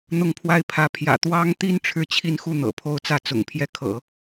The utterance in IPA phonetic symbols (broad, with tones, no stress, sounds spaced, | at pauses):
n̪ ʊ˥˧ ŋ pʰ w a˥˧ ɪ̯ pʰ ä˥˩ pʰ j ä̰˨˩ t̪ w ɑ˥ ŋ t̪ i˥ n ʈ͡ʂʰ ɻ̩˥˧ t͡ɕʰ i˥˧ n x u˥˩ n̪ ɤ̰˨˩ pʰ o˥˧ ʊ̯ t͡s ä˥˩ t͡s ʊ̰˨˩ ŋ pʰ j ɛ˥˩ kʰ ɤ̰˨˩˦